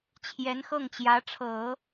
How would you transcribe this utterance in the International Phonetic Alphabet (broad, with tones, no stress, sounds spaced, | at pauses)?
t͡ɕʰ j ɛ˧˥ n x ɤ˥˩ ŋ t͡ɕ j ä˧˥ ʈ͡ʂʰ ɤ˨˩˦